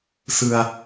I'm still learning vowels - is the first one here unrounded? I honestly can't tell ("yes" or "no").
yes